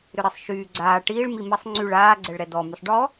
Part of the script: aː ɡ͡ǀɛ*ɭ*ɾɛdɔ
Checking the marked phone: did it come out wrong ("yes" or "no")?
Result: no